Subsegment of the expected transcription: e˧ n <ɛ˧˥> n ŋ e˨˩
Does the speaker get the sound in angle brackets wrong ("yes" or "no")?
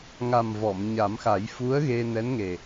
no